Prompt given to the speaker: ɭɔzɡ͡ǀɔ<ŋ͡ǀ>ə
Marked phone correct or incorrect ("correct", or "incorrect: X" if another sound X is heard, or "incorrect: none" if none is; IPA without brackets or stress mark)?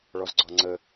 correct